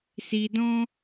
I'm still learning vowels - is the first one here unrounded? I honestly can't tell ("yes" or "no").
yes